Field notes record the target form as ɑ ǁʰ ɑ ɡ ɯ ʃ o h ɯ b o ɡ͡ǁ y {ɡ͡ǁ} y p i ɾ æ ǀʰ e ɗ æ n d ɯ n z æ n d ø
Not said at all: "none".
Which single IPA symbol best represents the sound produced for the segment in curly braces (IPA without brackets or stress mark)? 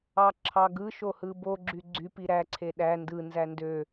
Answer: ɡ͡ǀ